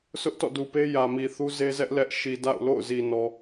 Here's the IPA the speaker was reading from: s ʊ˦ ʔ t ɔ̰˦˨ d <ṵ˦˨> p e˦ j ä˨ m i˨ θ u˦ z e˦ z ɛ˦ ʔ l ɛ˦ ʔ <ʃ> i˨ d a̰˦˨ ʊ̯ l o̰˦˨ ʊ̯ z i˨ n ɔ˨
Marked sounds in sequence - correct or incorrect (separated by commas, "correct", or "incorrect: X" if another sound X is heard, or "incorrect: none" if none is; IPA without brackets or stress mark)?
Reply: incorrect: u˨, correct